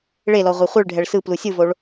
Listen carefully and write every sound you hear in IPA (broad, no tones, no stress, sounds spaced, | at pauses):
ɭ e l ɔ ʁʷ ɛ χʷ ɯ ɭ ɖʱ ɛ ɭ s ɯ p l u sʲ ɯ v o ɭ